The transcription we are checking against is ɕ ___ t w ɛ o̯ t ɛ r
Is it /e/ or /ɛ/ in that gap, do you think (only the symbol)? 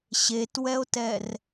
e